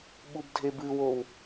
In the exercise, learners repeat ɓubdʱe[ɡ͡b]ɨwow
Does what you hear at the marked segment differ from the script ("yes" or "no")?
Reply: yes